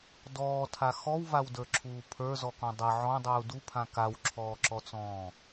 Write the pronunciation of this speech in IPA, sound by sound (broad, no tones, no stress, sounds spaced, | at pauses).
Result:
d ɔː tʰ a x ɔ w v a w d ə˞ ǁʰ uː pʰ ə˞ z ɔ k ɔ̃ dˤ ə ʕ ɔ̃ dˤ uː d u pʰ ã k a w ǁʰ ɔː ǁ ɔ t͡s ɔ̃ː